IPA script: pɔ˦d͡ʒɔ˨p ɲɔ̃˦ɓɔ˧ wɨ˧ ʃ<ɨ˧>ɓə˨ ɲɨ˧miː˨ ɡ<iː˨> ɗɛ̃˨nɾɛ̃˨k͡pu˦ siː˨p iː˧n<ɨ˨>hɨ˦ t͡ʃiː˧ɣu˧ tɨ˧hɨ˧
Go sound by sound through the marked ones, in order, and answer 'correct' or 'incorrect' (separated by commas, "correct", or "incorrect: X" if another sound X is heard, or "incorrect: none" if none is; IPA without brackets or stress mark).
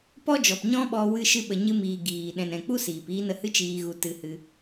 correct, correct, incorrect: ə˨